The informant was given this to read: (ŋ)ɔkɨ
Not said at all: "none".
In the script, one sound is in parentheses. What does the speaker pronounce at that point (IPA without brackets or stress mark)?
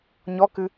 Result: ɲ